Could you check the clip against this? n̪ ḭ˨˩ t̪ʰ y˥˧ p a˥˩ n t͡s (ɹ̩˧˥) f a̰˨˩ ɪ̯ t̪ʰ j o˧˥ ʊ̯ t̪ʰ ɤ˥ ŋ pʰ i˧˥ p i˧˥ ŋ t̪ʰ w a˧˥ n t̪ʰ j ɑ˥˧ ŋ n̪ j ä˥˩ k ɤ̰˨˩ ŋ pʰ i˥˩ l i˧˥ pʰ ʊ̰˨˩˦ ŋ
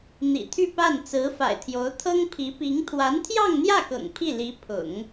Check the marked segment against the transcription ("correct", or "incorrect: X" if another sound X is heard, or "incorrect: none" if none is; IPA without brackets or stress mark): correct